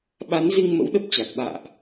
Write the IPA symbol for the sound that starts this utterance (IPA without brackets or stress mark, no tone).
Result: ɓ